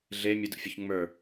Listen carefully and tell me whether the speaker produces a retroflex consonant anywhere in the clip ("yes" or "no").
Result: no